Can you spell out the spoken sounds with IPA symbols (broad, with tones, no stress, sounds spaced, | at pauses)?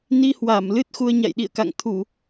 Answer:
n i˧ h w a˧˩ m l ɨ˦˥ t̚ x u˧ ə̯ ɲ a̰˧˨ j ɗ ḭ˧˨ ə̯ k a̰˧˨ ŋ t̪ʰ u˧˩˨